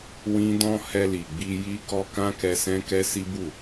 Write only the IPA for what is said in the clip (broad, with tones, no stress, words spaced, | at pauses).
wĩ˦ dɔ̃˦ hɛ˧li˨ɡ͡bi˧ ji˦kɔ˦ kã˦kɛ˧ sɛ̃˦kɛ˦si˦bu˦˨